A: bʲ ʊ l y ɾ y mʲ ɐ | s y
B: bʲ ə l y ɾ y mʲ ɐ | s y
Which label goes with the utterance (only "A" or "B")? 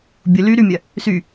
A